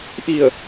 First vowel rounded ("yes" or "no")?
no